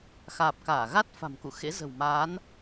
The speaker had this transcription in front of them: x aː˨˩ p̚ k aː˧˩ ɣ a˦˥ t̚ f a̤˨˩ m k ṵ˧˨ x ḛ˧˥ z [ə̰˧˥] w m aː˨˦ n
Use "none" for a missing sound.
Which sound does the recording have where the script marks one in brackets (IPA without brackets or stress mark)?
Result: ə̤˨˩